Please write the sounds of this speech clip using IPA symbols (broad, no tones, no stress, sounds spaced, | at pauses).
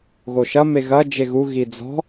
ɣ o ʃ ɐ m e ɣ ɐ d͡ʒ e ɣ u ɣ i d͡z ɔ̤